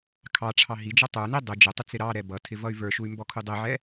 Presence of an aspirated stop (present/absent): present